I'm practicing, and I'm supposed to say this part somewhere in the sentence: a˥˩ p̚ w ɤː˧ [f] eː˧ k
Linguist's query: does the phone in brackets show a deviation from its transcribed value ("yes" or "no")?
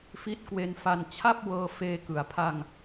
no